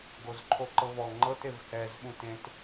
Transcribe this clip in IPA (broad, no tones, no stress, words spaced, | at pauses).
ɡozǃʰoǃɤvɔ ŋ͡ǃɤt evhɛz ɓũtẽt